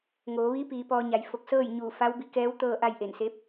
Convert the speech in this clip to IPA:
ŋ oː˩˧ ʋ iː˧˥ p iː˩˧ p ɔː˧ ɲ a˩˧ j f o˧˩ k̚ s ɤː˥˨ j ɲ uː˧˩ f a˧˥ w b i˧ k ɛː˧˥ w t̪ ɤː˥˨ ʔ a˥˨ j ʔ e˧˩ n s e˧˥ p̚

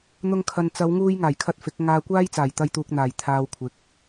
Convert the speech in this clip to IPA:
n̪ ʊ˧ ŋ kʰ ɐ˨ n t͡s ɐ˨˧ w ŋ uː˧ j ŋ aː˨˩ j kʰ ɐ˧ t̚ f ɪ˨˥ k̚ ŋ aː˧ kʷ aː˥ j t͡s aː˨˩ j t̪ ɐ˧ j t̪ uː˨ k̚ n̪ aː˨˩ j t̪ʰ aː˧ w kʷʰ ɪ˨˥ k̚

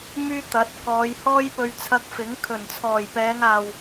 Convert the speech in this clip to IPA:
m yː˥ t̪ ɐ˨˥ t̚ k ɔː˨˧ j h ɔː˥ j p ɵ˧ ɥ t͡sʰ ɐ˧ k̚ f ɪ˨˥ ŋ kʰ ɵ˨˩ n t͡sʰ ɔː˨˩ j p ɛː˨˧ ŋ aː˨ w

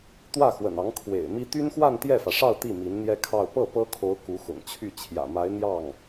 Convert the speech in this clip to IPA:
t̪ w ä˥˩ x w ə̰˨˩ n ɑ˧˥ ŋ kʰ w ḛ˨˩ ɪ̯ m i˥ t̪ y˥ n x w a˥˧ n t̪ j ɛ˥˩ f ä˩ ʂ ɑ˥˧ ʊ̯ t̪ i˥˩ m i˧˥ n n̪ j ɛ˥ kʰ ɑ˥˧ ʊ̯ p ɤ˥˩ p ɤ˥ kʰ o˧˥ ʊ̯ k u˧˥ x ʊ̰˨˩ ŋ t͡ɕʰ y˥˩ t͡ɕʰ j ä̰˨˩ m a˧˥ ɪ̯ n̪ j ɑ˥˩ ŋ

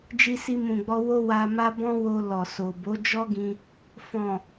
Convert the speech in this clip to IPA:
d͡ʒ i˧ s i˧ m ũ˨ ɡ͡b ɔ˧ w o˦ w a˧ m a˦ b ɔ̃˦ w o˧ l ɔ˨ s o˨ b o˨˦ d͡ʒ ɔ˦ ɡ ĩ˧ | f ɔ̃˨

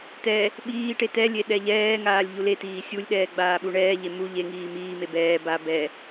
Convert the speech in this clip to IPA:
t ɛ | ɓ iː ʈ e t ɛ lʲ e ɗ ɛ ʎ ɛː ŋ aː lʲ ʎ u l e t iː sʲ u lʲ ɗ ɛː ɡ͡b aː ɓ u ɳ ɛː ʎ e m u ʎ e ŋ iː m iː m e b ɛː b a b ɛ

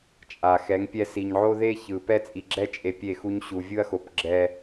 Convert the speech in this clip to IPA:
t͡ʃʼ a˨ x ɛ˨˦ ŋ pʲ ɛ˦ s i˨ ɲ ʕ o˦ ð e˦ ç ɯ˨ p ɛ˦ t͡sʼ i˨ ɡ͡ǁ ɛ˦ t͡ʃʼ e˨ pʲ e˦˨ x u˦ ɲ ɕ u˨ vʲ ɯ˦ ɐ̯ x o˨ p ɡ͡ǁ ɛ˦

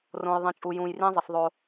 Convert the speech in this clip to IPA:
r õ˨ j ðˤ ĩ˨ t͡ʃʼ u˨ j ũ˨ j r ĩ˦ zˤ ə˨ s ðˤ o˦

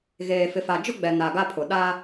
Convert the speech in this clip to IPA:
ɣ eː˨ f ɪ˨ f a˨ d͡ʒ ʊ˦ ɡ͡b ɛ˨ n a˨ ɡ a˦ pʰ ʊ˨ ɗ a˦

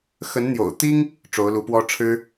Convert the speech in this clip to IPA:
x ə˧˥ n n̪ j o̰˨˩ ʊ̯ t̪ i˥ ŋ | ʈ͡ʂ o˧˥ ʊ̯ l u˧˥ p w ɔ˥ ʈ͡ʂʰ ɻ̩˥

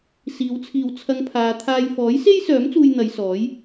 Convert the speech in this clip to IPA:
s iː˨˧ w t͡sʰ iː˨ w t͡sʰ ɐ˧ ŋ pʰ aː˨˧ t̪ʰ aː˧ j f ɔː˨˥ j s e˥ j s œː˨˥ m t͡s uː˧ j n̪ ɐ˨˧ j s ɔː˨˥ j

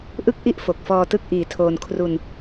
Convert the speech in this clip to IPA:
ʔ ɯ˥˩ k̚ ʔ i˥˩ ʔ f o˨˩ k̚ f ɔː˧ t ɯ˥˩ k̚ ʔ iː˨˩ tʰ oː˧ n kʰ r u˧ n

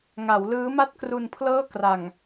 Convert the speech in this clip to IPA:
ŋ a˩˦ w l ɯː˦˥ m a˥˩ t̚ k r u˧ n pʰ l ɤː˥˩ k r a˨˩ ŋ

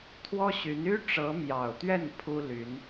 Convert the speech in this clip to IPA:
t̪ʰ w ɔ˥ ɕ y˧˥ n y˥ ʈ͡ʂ ɤ˧˥ m j ɑ˨˩ ʊ̯ t̪ ɥ ɛ˥˩ n pʰ u˥ l y˧˥ n

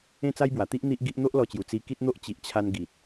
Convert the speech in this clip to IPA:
ẽ˥˧ t͡s a˦ j b w a˨˩ t̪ i˦ ʔ n̪ i˦ ʔ ɡ i˦ ʔ n̪ o˦ ʔ l ɔ˧ t͡ɕ j u˨˩ t͡s i˧ k i˦ t̚ n̪ o˦ ʔ t͡ɕ i˨ ʔ t͡ɕʰ a˧ n ɡ i˨ t̚

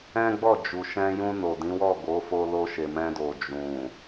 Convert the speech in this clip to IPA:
ɛ̃˦ ɡ͡b ɔ˦˨ d͡ʒ u˨ ʃ ɛ̃˧ j ũ˧ n o˨ d ĩ˨˦ w ɔ˦˨ ɡ o˨˦ f o˧ l o˧ ʃ e˨ m ɛ̃˧ d o˨ d͡ʒ ũ˨

